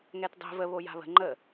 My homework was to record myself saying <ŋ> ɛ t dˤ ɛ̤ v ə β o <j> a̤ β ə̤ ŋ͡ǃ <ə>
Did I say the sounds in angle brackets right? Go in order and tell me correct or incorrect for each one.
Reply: correct, correct, correct

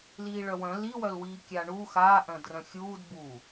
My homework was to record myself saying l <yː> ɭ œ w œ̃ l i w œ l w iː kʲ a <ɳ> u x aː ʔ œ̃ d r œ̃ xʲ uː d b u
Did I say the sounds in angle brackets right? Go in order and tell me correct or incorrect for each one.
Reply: incorrect, correct

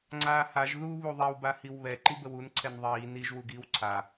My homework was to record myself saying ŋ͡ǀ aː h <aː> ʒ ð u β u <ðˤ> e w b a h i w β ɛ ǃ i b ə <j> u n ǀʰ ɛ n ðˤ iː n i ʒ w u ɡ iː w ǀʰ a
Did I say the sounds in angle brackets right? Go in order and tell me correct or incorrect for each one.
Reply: incorrect, correct, incorrect

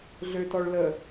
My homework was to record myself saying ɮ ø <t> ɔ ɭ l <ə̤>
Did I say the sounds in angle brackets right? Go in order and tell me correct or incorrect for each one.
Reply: correct, incorrect

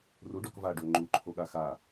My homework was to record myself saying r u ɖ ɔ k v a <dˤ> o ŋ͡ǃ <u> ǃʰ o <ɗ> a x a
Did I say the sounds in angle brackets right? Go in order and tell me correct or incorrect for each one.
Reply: incorrect, correct, incorrect

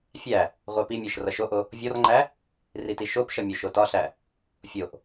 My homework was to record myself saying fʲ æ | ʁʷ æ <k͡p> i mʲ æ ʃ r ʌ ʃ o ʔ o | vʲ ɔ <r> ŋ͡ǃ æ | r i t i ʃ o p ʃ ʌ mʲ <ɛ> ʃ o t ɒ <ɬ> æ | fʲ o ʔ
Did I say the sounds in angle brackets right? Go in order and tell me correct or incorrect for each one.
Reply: incorrect, correct, incorrect, correct

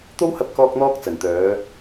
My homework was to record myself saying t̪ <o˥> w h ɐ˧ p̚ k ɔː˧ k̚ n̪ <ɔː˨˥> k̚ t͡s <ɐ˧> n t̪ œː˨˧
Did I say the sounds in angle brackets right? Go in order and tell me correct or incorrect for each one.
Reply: correct, incorrect, incorrect

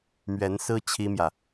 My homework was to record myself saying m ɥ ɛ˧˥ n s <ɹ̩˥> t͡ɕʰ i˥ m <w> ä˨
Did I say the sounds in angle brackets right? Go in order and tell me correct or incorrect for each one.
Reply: correct, incorrect

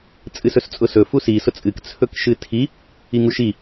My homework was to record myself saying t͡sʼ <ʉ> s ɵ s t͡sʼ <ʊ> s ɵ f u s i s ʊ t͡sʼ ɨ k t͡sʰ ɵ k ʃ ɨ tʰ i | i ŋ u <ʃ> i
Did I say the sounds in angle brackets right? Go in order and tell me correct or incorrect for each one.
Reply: incorrect, correct, correct

